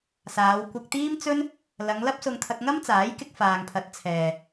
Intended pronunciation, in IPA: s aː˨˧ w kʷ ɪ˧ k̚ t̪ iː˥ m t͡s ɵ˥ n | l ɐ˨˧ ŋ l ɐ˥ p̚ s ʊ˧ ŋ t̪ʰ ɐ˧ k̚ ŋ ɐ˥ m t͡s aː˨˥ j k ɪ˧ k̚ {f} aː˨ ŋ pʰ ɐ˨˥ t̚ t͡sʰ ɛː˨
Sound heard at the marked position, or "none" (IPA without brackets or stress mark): f